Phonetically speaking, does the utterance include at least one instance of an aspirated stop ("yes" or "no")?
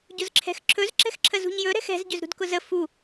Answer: yes